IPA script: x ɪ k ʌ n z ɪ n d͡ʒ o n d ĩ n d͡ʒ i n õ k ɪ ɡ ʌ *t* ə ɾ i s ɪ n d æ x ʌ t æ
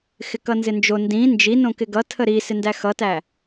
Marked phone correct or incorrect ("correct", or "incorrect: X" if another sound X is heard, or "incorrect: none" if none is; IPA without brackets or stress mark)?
incorrect: tʰ